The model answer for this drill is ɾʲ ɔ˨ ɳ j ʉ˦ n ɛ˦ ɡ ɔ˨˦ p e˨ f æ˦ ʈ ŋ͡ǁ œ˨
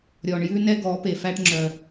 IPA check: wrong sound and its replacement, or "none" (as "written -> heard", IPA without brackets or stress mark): none